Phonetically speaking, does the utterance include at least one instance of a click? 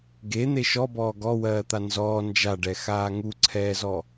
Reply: yes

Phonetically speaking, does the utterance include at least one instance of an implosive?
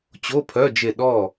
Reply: yes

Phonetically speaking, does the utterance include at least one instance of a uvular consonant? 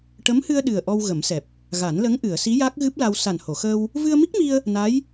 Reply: no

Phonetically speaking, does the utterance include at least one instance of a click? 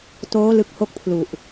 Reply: no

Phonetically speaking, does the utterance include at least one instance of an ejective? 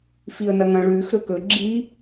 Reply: no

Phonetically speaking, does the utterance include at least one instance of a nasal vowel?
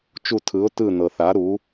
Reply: no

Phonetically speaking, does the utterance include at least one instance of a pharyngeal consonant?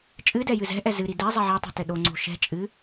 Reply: yes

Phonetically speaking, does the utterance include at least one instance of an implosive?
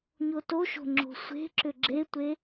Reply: no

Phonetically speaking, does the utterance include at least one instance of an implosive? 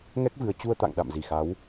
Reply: yes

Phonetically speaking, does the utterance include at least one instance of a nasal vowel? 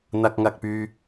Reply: no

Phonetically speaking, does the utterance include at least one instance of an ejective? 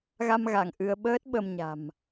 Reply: no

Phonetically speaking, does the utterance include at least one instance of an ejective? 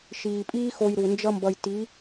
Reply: yes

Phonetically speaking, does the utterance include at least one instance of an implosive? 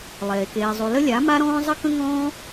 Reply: no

